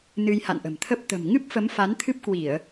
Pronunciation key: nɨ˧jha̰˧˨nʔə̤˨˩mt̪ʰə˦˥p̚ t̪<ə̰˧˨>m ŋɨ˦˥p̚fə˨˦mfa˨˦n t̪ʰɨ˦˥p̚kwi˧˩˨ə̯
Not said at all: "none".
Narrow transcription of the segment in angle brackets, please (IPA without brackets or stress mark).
ə̤˨˩